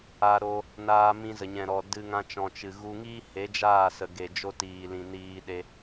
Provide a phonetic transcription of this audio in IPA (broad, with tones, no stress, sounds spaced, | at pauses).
a˧ ɾ o˧ | n aː˧ m ĩ˧ z ə˨ ɲ ɛ̃˨ ɾ ɔ˨ d ɨ˧ ŋ ã˧ t͡ʃ ɔ̃˨ t͡ʃ ɨ˨ ɣ u˧ ŋ iː˦ h e˨˦ d͡ʒ aː˦˨ s ə˨ ɡ e˨ d͡ʒ o˧ t iː˨ l ĩ˨ n iː˧ ɗ e˧